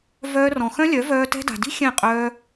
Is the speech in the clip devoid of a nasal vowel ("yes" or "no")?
no